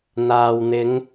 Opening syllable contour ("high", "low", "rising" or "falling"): low